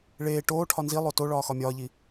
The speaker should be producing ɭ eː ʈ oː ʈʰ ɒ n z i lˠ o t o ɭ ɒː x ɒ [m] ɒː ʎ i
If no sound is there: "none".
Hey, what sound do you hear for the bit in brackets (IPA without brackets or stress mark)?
mʲ